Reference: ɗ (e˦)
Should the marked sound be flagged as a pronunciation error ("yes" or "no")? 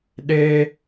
no